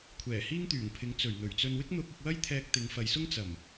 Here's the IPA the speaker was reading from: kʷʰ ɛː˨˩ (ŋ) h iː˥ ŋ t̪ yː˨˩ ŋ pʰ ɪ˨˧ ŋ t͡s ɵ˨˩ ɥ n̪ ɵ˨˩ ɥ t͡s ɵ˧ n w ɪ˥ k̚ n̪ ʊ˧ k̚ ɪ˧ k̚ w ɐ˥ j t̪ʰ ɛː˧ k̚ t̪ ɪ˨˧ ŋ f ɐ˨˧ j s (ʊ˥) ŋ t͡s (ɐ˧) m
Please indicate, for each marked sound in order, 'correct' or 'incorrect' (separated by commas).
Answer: incorrect, correct, incorrect